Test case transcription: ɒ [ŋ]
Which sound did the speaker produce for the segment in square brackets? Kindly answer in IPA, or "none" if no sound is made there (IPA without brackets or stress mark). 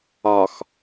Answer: x